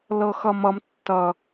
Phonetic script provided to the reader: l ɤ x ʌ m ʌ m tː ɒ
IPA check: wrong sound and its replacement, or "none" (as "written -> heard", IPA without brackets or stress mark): ɒ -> ʌ